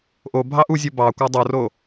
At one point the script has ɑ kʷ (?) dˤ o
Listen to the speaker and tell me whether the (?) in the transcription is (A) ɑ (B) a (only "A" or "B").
B